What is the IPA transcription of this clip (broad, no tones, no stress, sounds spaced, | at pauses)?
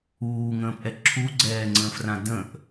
uː ŋ ə̃ː p ʔ ɛ ǁʰ u ɡ͡ǀ ɛː ŋ͡ǀ ə̃ː f r ã d ə̃ ʔ